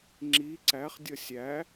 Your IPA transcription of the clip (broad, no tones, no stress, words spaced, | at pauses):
ŋ͡ǁi ǀæχdʲʌ sʲæ